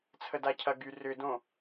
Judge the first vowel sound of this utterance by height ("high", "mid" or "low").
mid